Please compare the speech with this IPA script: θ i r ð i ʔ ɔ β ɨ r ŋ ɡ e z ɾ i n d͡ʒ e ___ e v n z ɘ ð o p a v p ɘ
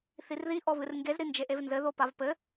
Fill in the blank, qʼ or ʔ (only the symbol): ʔ